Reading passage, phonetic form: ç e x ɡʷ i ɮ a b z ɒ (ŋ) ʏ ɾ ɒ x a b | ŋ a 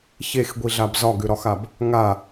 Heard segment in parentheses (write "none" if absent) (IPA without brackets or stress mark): ɡ